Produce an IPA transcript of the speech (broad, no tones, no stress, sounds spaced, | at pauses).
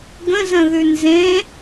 ɡ ə̃ z ə̃ ð ʉ n z ẽ